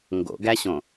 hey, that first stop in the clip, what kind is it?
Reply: plain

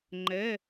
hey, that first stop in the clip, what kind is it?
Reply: click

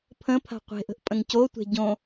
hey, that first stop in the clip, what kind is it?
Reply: aspirated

